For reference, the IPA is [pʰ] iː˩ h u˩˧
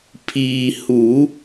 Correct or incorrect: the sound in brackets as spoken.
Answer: correct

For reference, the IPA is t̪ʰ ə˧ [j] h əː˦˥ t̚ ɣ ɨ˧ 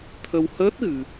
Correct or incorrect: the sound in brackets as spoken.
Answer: incorrect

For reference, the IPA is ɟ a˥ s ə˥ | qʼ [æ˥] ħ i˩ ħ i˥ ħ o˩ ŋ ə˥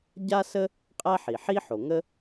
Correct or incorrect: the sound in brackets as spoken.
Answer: correct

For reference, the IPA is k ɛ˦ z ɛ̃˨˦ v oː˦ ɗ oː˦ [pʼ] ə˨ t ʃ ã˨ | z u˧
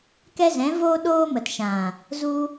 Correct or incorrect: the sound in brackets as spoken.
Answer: incorrect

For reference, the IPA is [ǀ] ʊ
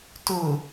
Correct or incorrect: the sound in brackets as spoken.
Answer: incorrect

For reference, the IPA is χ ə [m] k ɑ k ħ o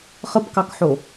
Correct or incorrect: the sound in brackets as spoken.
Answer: incorrect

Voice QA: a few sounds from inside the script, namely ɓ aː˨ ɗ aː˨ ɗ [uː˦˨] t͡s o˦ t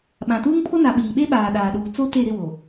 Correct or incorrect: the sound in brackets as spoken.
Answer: incorrect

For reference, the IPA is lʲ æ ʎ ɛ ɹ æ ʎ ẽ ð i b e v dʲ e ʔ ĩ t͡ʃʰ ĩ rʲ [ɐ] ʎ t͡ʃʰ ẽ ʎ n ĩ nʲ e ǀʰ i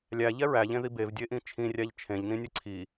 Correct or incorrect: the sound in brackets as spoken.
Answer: incorrect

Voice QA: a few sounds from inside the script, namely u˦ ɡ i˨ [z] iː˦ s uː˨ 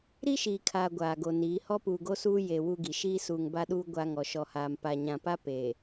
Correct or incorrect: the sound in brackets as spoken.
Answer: incorrect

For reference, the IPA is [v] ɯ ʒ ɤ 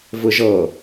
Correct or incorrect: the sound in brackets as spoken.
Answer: correct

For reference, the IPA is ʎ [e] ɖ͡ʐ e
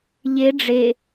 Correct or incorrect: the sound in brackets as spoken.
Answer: correct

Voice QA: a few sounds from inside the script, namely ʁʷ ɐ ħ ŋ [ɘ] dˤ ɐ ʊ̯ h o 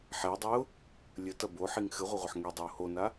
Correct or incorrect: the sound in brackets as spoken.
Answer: incorrect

